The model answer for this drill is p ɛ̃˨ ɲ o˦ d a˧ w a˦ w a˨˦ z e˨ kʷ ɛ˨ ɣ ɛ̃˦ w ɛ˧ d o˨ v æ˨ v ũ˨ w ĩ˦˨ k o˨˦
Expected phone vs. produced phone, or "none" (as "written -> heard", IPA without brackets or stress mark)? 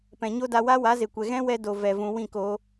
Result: æ˨ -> ɛ˨